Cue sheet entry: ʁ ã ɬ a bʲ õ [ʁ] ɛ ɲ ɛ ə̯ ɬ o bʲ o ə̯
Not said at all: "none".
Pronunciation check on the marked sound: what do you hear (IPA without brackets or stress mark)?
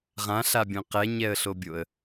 q